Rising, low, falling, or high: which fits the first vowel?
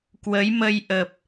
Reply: rising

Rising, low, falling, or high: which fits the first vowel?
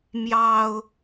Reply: low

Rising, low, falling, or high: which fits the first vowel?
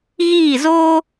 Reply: falling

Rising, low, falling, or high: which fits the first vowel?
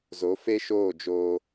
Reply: rising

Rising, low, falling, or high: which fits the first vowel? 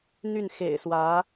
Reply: falling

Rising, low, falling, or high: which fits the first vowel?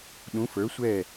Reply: rising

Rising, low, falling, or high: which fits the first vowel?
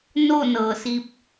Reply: falling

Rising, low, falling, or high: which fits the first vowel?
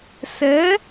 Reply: rising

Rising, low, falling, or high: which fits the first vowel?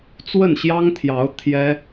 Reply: falling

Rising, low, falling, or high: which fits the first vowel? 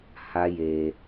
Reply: high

